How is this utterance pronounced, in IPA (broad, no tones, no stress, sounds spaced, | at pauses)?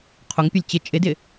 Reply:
qʰ o ŋ pʲ ɐ lʲ t͡ɕ ɪ t͡ʃʼ ɪ d ɪ